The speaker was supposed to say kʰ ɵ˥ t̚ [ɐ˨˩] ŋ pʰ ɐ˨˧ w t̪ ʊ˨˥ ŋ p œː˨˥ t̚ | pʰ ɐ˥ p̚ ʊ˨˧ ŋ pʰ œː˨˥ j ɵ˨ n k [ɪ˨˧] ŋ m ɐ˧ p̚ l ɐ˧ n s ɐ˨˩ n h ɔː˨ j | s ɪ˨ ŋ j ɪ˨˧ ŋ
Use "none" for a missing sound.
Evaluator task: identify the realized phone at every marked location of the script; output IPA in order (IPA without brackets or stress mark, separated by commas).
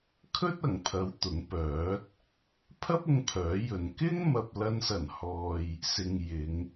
ɐ˨˩, ɪ˥